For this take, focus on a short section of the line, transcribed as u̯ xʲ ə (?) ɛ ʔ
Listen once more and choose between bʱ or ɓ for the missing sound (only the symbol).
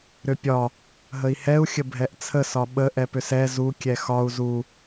bʱ